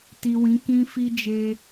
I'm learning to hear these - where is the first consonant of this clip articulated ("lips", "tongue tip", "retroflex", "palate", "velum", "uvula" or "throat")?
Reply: tongue tip